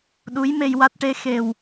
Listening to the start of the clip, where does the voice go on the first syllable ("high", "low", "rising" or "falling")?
rising